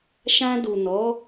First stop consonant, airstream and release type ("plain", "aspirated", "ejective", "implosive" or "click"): plain